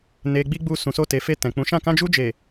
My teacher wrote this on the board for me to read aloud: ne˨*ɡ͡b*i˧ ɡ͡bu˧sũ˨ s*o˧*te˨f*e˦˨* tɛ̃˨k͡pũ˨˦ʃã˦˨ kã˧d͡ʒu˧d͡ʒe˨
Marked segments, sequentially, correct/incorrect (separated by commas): correct, correct, incorrect